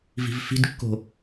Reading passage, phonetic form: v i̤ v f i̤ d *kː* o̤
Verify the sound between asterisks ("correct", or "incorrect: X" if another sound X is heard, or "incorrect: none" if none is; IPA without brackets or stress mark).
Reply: correct